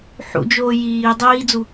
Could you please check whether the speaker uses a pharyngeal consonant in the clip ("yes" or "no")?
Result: yes